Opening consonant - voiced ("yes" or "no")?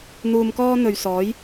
yes